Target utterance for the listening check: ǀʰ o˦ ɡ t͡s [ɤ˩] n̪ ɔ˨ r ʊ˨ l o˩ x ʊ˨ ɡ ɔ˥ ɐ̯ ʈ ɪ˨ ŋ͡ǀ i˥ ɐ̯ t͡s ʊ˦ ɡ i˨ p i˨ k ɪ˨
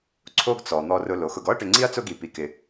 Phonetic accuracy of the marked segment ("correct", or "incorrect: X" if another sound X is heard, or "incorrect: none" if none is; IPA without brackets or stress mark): incorrect: ɔ˩